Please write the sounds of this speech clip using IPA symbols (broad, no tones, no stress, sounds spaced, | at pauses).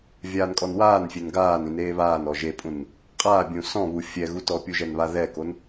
vʲ aː n kʼ ɔ n w aː n fʲ e n ɡ aː n ĩ n eː β aː n ɔ ʒ e pʼ ũ n | qʼ aː bʲ ũ s ɔ̃ β u fʲ ɛ ɣ u t ɔ pʲ u ʒ ɛ n β a ð ɛ k o n